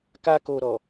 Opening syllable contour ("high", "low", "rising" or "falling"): high